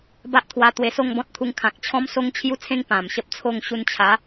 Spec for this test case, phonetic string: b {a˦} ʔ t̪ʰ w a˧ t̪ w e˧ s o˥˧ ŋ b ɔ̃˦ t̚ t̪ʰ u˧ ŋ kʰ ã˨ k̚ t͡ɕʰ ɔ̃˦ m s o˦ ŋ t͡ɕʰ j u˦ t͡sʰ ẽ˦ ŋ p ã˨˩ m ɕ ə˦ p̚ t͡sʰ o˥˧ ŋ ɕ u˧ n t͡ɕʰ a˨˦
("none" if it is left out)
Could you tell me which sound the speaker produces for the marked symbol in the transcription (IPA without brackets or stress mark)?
a˦